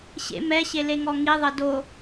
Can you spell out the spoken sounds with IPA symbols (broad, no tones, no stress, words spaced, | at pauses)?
ɕḛ mɛɕeleŋɔ ŋiðˤɤ do